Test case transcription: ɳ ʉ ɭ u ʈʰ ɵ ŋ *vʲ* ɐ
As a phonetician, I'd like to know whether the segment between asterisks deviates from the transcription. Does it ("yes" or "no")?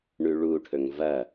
yes